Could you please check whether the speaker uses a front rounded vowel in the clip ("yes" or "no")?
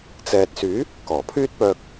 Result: yes